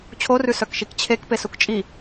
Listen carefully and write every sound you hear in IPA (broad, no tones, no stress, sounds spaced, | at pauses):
t͡ɕʰ o r ʉ s œ k ʃ i k t͡ɕʰ e k p e s u k t͡ʃʼ i